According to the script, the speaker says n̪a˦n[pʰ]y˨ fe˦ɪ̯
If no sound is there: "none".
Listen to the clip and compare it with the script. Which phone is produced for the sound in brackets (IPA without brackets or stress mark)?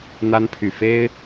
pʰ